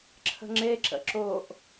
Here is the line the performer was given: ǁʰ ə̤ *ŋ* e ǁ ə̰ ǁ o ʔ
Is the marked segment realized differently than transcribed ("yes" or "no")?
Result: yes